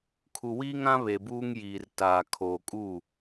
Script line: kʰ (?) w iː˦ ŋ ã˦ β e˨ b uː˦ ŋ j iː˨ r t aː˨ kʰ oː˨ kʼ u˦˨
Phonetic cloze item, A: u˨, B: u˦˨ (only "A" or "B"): A